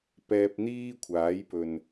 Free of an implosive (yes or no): yes